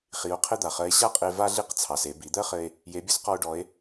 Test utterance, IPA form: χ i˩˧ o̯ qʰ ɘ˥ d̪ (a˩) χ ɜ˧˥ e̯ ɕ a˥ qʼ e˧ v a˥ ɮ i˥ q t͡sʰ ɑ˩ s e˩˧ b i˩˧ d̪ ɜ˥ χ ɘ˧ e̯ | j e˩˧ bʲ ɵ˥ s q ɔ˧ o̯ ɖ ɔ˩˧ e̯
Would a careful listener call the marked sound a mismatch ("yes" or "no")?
no